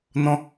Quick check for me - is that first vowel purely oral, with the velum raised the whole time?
no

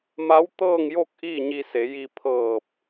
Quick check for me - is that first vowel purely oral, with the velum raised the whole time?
yes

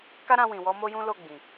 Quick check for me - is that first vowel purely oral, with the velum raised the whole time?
yes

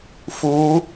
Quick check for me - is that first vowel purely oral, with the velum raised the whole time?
yes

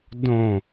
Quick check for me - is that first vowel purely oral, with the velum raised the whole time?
no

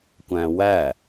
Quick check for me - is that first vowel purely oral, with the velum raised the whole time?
no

